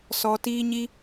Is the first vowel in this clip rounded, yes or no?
yes